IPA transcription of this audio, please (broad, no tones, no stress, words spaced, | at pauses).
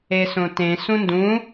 esõtẽ sũndũ